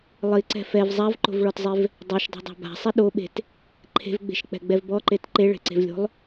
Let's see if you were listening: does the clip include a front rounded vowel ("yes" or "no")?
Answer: no